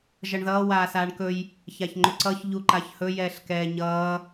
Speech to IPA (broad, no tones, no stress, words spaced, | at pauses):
ʒʌɳðʌː waːsaːɳkɵj | çaçŋ͡ǃʏǀʌç ʎuǃaçhɵ jɛːɬkɛːɲʌː